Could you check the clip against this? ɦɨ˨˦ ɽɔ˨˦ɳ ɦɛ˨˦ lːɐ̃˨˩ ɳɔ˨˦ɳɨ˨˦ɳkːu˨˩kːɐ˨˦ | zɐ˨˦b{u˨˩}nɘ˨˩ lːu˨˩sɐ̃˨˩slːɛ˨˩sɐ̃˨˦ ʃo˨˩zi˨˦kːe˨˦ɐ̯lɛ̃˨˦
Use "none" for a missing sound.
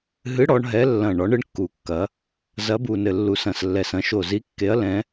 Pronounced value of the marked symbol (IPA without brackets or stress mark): u˨˩